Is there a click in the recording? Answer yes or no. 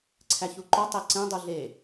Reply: yes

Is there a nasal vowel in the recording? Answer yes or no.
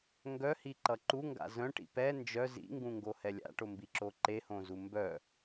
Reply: yes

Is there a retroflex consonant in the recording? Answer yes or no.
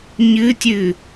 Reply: no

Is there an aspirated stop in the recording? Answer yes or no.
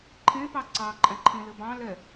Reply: yes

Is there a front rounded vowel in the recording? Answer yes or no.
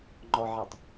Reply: no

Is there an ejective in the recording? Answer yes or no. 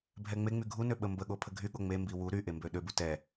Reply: no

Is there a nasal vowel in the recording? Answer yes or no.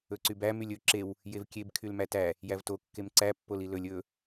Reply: no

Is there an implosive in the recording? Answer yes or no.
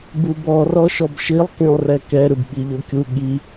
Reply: yes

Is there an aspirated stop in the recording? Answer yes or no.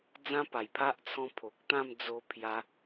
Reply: yes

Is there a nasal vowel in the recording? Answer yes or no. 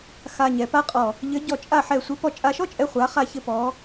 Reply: no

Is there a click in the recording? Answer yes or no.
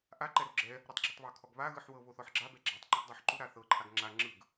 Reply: yes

